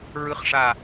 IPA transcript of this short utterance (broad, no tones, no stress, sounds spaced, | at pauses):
ɹ ɯ χ ʂ a